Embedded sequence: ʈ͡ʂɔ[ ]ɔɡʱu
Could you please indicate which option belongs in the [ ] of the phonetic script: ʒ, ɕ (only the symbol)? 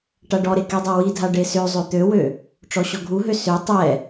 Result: ɕ